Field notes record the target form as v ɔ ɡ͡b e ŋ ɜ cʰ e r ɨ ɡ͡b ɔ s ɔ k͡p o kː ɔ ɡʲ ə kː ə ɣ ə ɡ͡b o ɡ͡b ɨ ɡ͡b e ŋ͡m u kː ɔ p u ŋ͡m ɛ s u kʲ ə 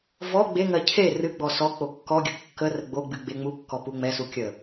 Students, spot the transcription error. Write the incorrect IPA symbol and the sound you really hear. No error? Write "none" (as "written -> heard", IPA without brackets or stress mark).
ɣ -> r